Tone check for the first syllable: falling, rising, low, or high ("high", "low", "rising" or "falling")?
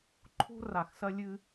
high